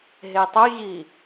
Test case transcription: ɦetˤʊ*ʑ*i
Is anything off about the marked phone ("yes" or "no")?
no